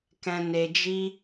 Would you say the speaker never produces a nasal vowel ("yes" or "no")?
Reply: no